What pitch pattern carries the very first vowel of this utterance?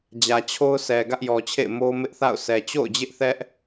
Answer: low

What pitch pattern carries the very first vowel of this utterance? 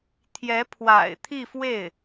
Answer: rising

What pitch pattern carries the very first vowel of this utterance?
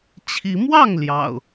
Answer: rising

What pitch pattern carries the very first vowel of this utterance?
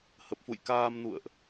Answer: low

